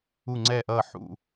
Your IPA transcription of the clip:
u˧˩ ŋ͡ǀ ɛ˧˩ ʔ ʌː˧˩ ħ ṵ˧˩

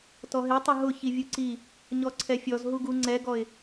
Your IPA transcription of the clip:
t ɔ ɦ e tˤ ʊ ɦ ʊ ç i vʲ u ǀ i | ɲ ɔ ǀʰ ɛ fʲ ɔ z ɦ u ɡ u ŋ͡ǀ ɛ ɡ ɔ ɪ̯

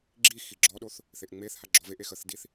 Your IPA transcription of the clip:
ɡ͡ǁ i x i ɡ͡ǁ ɔ ɗ o θ | θ e ʔ ŋ͡m e θ h a ɡ͡ǁ ɔ v e ʔ e x ə θ d i θ

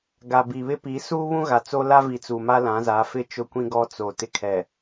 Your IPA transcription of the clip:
ɡ a˨ b i˨ β ɪ˦ p i˨˦ s uː˦ β ũ˦ ɣ a˨ t͡s o˦ l a˦ v i˨ t͡s uː˨ m a˦ l ã˨˦ z a˨˦ f ɪ˦ t͡ʃ ʊ˦ kʷ ĩ˦ ɡ ɔ˦ t͡s o˨ t ɪ˦ kʰ ɛ˨

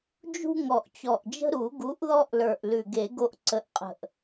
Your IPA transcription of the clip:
d͡ʒ ṳ˦ ŋ ɔ˨˩ ʔ t͡ɕ ɔ˨˩ ʔ d͡ʒ ə̤˦ ɾ u˨˩˦ ɡ u˨˥ ʔ ð ɔ˦ ʔ l ə˞˨˩ ʔ l ʉ˨˩ ɡ e˨˩˦ ɡ o˦ ʔ ǀ ə˨˥ ʔ qʼ ə̤˨˩ ʔ

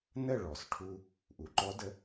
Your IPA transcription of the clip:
n ə˥˩ ɭ ɔ˩ s ʈʰ u˧ | ʔ u˩ ǃ ɔ˦˥ d ə˦˥

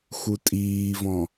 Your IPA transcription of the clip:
x u tʼ iː v ɔ̃

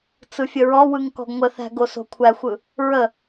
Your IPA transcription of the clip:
t͡s ɯ fʲ ə ɹ ɔ w ɯ ŋ k ɔ̤ ɡ ŋʷ ə θ æ̤ ɡ o s o̤ kʷʰ æ xʷ ɯ | ɹ ə

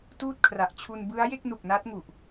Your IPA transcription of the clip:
t uː˥˩ t̚ kʰ r a˨˩ ʔ t͡ɕʰ u˧ n b ɯ˦˥ a̯ j e˥˩ k̚ n u˨˩ k̚ n a˦˥ t̚ ŋ u˨˩ ʔ

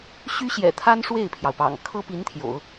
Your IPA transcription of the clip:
ɕ y˥ ɕ j ɛ̰˨˩ t̪ʰ a˥ n ʂ w e˥˩ ɪ̯ pʰ j ɑ˩ ʊ̯ p ɑ̰˨˩ ŋ kʰ ɤ˥ p i˧˥ n t̪ʰ j o̰˨˩˦ ʊ̯

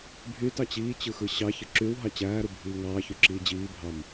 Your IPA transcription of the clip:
bʱ y t ɑ t͡ɕ iː t͡ɕ ɯ x ɯ ɕ ɑ ç ɯ ǁ y w ɦ ɑ t͡ɕ æː ɾ u bʱ iː ŋ ɑː ç y ǁ iː d͡ʑ iː bʱ ɑ m

